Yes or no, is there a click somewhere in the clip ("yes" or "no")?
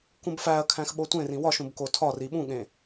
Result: no